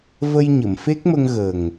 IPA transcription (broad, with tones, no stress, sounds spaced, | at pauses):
v ə˧ j ɲ ə˨˩˨ m f e˦˥ k̚ m ə˧ ŋ ɣ ə˨˩ ŋ